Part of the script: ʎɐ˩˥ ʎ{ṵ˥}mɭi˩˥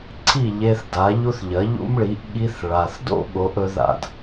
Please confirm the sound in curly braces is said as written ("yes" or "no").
yes